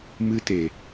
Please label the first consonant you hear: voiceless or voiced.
voiced